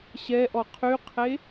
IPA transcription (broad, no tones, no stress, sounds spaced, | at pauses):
ɕ ɛ ʔ ɔ qʰ y qʰ e